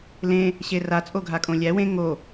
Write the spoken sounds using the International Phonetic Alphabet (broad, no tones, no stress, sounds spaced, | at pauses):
l ẽ | ɕ e r a t͡sʼ o ɡʱ a kʼ õ lʲ æ w ẽ ŋ o